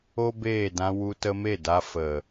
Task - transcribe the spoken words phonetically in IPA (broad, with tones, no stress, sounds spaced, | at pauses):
o˦ b eː˦˨ d ã˧ w u˧ t ə˧ m e˦˨ d a˧ f ə˨